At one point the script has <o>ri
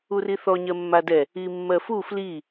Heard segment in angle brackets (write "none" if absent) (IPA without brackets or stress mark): u